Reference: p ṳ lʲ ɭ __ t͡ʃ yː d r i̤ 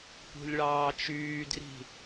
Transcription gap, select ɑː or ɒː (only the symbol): ɑː